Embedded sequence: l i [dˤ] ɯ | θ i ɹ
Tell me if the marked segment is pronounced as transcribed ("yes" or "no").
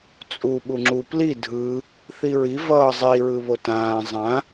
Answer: no